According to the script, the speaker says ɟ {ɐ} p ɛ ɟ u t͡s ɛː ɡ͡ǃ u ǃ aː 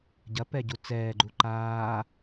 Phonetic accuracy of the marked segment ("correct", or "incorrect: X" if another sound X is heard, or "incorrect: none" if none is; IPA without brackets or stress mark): correct